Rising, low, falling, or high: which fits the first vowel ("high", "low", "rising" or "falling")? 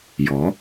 rising